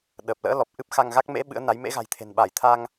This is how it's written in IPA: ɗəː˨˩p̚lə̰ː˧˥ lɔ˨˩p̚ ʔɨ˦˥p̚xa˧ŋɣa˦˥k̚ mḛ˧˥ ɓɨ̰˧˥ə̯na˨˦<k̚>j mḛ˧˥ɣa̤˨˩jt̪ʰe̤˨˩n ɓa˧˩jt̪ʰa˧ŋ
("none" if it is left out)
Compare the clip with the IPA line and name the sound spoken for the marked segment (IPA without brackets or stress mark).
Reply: none